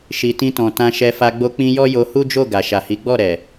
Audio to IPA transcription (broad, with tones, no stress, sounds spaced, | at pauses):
ʃ i˨ t ĩ˧ t ɔ̃˨ t ã˧ ʃ ɛ˧ f a˧ ɡ͡b o˧ k͡p ĩ˧ j ɔ˦ j o˧ h u˦ d͡ʒ o˦˨ ɡ a˨ ʃ a˨ h i˨˦ ɡ͡b ɔ˦˨ ɾ ɛ˨